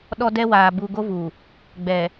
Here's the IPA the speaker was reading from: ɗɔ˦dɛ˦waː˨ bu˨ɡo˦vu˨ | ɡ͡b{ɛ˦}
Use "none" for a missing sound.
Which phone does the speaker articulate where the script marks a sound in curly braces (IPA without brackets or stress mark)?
ɛ˨